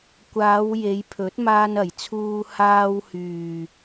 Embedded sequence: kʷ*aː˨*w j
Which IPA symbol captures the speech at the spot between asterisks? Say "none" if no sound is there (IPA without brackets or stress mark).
aː˨˧